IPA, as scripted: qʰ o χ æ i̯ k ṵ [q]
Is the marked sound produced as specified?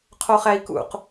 yes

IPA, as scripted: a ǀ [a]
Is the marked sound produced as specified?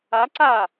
yes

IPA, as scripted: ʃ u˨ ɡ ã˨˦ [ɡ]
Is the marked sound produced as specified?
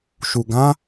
no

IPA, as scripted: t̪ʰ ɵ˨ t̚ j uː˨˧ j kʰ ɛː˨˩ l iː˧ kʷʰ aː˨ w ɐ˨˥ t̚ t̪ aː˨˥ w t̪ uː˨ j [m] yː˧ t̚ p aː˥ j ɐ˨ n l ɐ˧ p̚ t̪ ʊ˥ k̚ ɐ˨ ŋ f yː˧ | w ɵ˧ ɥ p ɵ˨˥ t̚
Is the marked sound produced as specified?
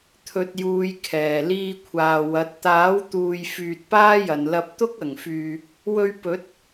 no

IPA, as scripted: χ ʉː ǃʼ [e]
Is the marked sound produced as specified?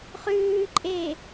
yes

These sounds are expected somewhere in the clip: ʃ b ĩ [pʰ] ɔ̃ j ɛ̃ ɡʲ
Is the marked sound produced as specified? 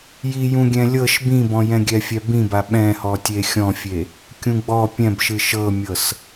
no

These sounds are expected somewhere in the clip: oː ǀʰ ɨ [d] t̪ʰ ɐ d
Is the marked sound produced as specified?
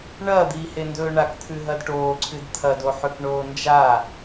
yes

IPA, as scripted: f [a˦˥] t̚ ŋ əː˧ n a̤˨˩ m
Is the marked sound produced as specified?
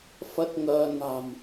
no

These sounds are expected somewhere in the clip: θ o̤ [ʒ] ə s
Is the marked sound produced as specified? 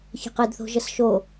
yes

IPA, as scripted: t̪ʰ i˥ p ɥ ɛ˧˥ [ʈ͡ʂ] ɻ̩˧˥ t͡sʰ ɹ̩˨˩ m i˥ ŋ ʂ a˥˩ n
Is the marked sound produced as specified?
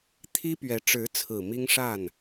yes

